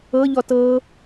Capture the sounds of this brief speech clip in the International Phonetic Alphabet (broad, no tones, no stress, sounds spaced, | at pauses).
ɤ ʎ ɔ t ɤ